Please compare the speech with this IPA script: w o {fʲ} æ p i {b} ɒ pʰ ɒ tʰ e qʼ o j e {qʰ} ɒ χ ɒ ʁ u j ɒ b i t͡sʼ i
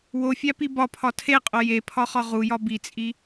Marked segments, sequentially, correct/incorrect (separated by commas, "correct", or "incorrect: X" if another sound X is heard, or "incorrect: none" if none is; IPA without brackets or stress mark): correct, correct, incorrect: pʰ